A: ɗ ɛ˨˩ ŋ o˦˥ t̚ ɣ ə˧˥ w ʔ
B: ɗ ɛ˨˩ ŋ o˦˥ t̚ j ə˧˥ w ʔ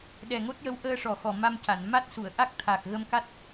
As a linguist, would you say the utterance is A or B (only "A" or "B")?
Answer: B